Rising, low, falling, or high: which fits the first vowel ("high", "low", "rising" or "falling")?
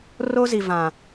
high